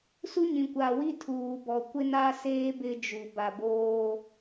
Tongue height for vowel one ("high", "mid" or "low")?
high